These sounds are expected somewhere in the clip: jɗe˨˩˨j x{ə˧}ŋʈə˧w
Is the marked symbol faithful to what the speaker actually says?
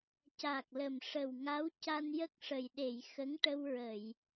no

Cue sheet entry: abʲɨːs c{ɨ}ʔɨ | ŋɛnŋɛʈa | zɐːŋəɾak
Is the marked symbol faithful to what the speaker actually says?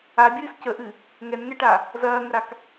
no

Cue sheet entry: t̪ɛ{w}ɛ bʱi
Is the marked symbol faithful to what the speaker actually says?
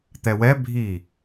yes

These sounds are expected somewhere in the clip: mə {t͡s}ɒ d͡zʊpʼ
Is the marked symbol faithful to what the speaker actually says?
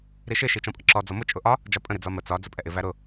yes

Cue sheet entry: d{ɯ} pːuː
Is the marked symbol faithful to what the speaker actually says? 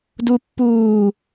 no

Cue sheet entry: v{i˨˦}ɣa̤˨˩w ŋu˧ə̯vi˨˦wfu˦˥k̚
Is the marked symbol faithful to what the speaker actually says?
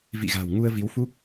no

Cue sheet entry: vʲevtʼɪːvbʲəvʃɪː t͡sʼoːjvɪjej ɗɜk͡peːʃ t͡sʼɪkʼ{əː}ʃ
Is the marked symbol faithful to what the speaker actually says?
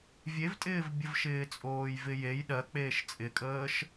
yes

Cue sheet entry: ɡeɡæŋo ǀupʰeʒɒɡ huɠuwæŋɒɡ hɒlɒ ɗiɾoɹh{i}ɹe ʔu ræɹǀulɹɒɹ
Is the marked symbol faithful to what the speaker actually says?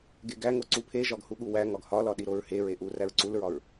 no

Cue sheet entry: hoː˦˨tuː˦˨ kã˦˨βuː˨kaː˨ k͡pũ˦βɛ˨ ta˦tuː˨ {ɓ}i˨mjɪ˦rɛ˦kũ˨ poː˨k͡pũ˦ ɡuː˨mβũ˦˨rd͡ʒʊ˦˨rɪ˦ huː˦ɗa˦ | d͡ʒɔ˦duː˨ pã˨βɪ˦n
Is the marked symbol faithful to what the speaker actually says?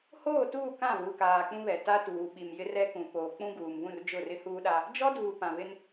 yes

